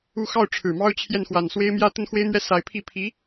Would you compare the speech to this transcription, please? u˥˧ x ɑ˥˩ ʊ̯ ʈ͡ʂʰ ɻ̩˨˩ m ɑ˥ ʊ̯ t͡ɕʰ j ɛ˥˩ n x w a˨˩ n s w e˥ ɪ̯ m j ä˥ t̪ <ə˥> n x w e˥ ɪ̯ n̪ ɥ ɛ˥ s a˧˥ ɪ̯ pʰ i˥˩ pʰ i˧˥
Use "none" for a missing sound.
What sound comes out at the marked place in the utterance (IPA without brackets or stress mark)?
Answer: ə˥